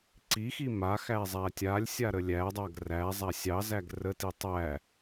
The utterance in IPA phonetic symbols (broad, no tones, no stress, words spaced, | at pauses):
ǀixi maxæ zˤætʲalʲsʲa ɾəlʲædˤaɡ ræzˤa sʲɑzæɡ rəti tˤæ